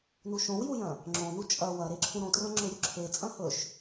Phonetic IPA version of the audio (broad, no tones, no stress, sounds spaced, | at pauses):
n u ʃ õ w j u j ɐ̃ | ŋ͡ǁ õ n u t͡ʃʼ ɐ w ɐ ɾ e ǁʰ ũ ɾ õ t r ɐ̃ ŋ͡ǁ ɵ j ɵ ǁʰ e t͡sʼ ɐ̃ h ɵ ʃ